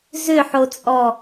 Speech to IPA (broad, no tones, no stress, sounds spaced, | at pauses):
z ʏ ħ o t͡sʼ ɔ